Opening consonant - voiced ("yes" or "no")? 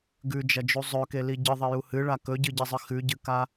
yes